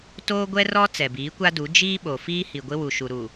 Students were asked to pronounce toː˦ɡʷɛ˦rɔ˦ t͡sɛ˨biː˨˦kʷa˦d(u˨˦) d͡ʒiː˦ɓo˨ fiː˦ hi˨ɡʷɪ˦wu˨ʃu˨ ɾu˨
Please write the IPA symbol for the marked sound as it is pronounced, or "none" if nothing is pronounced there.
u˨˦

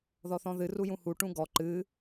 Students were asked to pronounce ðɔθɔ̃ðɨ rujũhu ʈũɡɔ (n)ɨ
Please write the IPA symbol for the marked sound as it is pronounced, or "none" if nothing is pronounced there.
ǃ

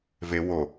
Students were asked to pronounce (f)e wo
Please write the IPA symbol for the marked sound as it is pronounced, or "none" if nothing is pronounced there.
v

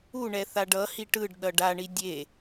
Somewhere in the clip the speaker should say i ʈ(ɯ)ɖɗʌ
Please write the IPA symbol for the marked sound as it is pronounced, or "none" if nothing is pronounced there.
ɯ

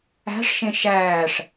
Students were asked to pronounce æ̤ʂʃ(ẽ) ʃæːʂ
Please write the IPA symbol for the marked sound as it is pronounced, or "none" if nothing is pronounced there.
ẽ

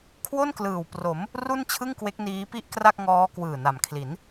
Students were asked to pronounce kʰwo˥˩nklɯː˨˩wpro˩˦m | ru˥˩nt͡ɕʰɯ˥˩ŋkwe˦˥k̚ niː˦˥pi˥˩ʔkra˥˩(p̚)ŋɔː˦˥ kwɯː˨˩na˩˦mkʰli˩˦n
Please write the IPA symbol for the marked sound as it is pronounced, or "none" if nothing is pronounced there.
k̚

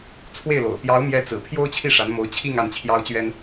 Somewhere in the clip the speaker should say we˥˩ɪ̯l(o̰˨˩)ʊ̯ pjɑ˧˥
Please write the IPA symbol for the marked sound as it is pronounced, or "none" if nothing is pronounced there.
o̰˨˩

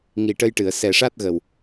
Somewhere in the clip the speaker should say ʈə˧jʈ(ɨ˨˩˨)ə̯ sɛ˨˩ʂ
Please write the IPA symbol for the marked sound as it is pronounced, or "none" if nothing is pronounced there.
ɨ˨˩˨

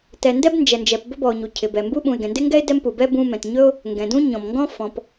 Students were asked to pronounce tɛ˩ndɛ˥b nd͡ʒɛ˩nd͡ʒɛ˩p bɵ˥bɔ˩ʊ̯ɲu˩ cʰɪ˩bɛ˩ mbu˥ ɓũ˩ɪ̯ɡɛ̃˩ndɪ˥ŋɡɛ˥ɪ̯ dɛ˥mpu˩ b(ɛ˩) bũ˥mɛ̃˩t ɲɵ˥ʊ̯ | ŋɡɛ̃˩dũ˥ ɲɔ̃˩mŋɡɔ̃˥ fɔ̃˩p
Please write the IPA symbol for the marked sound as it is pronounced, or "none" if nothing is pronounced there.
ɛ˥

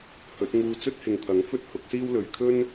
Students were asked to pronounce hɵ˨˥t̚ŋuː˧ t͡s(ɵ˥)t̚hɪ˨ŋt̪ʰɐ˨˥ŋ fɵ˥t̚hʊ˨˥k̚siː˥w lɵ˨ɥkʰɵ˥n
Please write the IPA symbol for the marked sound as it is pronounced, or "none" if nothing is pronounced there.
ɵ˥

